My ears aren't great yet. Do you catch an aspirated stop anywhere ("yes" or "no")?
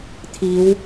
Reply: yes